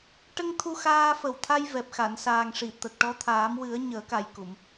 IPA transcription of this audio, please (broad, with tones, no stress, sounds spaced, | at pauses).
ʈ ə˧ ŋ t̪ʰ u˧ x aː˧ f ə˨˩ w t̪ʰ a˧ j v ɛ˨˩ p̚ x a˨˩˨ n s aː˨˩ ŋ ʂ i˨˩˨ t̪ ə˨˩ k̚ ʈ ɔ˧˥ t̪ʰ aː˨˩˦ m w ɨ˨˩˦ ə̯ ɲ əː˨˩˦ k a˨˩ j k u˨˩˨ m